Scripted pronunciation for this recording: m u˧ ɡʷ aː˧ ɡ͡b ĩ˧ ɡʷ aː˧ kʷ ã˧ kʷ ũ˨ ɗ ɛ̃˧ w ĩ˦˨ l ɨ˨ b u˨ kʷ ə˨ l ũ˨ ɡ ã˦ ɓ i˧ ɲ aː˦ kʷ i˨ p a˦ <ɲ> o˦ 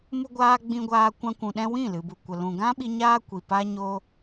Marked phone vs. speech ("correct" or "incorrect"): correct